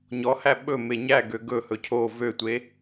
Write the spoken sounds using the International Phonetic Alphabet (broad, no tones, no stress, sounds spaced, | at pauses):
ɲ ɔ h æ ɓ ɵ m e ɲ æ ɡ ø ɡ ɵ h ɵ cʰ o v ø tʷ e